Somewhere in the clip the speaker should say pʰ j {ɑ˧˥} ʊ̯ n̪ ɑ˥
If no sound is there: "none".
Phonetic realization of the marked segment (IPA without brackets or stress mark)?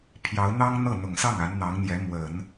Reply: ɑ˧˥